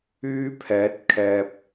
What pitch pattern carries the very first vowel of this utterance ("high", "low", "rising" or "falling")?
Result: high